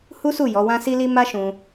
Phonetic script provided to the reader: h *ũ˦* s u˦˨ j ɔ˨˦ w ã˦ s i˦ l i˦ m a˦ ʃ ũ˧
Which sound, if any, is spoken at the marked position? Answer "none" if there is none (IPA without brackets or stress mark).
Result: u˦